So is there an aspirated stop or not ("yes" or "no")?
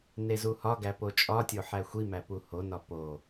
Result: no